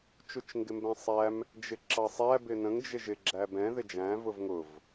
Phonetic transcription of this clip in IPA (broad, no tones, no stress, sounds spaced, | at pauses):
t͡ʃ u t͡ʃ ŋ ɡ ɪ m b ɛ̃ sˤ æ m | d͡ʒ ɪ ǁ ɑ sˤ æ b ɪ n ə̃ ŋ d͡ʒ ɪ ʒ ɪ ɡ͡ǁ æ b ɛ̃ ð ɪ d͡ʒ æ̃ v ʊ v ŋ ʊ v